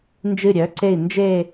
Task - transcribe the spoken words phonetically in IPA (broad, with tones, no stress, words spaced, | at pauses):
nd͡ʒɨ˦˨ɾʲœ˨˥ǀe˦˨i̯ nd͡ʒe˦˨